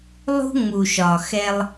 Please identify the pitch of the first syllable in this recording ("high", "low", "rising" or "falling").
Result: high